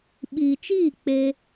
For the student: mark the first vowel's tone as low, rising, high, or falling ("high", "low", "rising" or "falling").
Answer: low